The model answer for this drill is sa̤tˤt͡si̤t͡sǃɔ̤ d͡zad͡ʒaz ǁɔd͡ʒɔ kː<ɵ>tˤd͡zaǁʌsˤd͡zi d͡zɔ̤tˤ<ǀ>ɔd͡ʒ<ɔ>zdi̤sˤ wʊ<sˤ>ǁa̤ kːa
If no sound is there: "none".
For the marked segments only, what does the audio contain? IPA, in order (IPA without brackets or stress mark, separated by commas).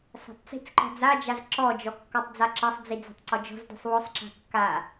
ɔ, ǀ, ɔ̤, sˤ